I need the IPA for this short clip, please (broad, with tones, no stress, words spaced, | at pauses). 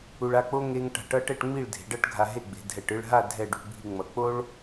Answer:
u˧ɭa˥˧k͡po˥ ŋe˥ŋ ʈa̤˧˩ʈʌ˥ʈɛ˥˧ʈŋ͡mi˥˧ɭ dʱe̤˩˧ɖʌ˥˧ʈɡʱa˧ ɦe˥˧ɡ͡be̤˩˧dʱɛ˧˩ʈ ɯ˥˧ɭɦa˥˧ dʱɛ˥˧ ɖṳ˧ bʱi˧ŋ͡mʌ˩˧ k͡po˥ɭ